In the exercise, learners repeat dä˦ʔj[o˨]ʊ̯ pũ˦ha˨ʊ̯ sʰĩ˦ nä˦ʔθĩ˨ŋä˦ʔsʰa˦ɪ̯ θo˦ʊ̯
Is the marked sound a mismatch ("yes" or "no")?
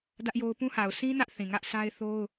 yes